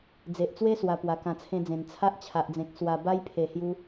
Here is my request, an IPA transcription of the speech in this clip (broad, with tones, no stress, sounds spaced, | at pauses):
d͡z e˨ ʔ t͡s w e˦ s w a˧ p w a˨˩ k ã˧ t͡sʰ ẽ˦ d͡z ẽ˨˩ n t͡sʰ a˦ ʔ t͡ɕʰ a˨ ʔ d͡z ẽ˨ k̚ s w a˧ b a˦ j pʰ e˨˩ h j u˧